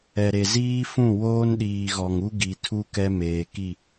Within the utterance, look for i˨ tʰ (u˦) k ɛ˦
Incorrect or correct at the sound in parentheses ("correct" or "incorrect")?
correct